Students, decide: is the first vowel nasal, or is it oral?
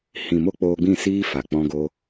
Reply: nasal